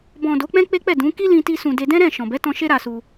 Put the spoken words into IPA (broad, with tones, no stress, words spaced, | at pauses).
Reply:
bɔ̃˨ do˨˦k͡pɛ̃˦ k͡pe˦k͡pɛ˦˨dũ˨˦ ki˦lĩ˧ti˧ sũ˨de˧ dɛ̃˦ɾɛ̃˦˨ ʃɔ̃˨ bɛ˨˦tɔ̃˧ ʃe˦ɾa˧su˧